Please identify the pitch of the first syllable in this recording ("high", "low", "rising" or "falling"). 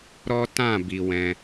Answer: high